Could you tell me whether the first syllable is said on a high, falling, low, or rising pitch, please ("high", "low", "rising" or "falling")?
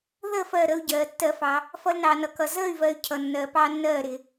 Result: falling